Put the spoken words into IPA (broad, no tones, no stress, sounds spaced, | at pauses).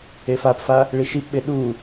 e f a p f a | ɭ i ʃ i p ɓ e ɗ u